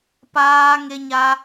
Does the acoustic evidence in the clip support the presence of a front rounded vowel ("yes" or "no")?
no